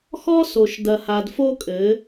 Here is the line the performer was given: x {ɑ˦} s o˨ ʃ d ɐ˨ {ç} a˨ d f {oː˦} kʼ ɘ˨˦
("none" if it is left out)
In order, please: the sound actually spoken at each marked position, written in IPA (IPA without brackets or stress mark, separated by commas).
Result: ɔ˦, h, o˦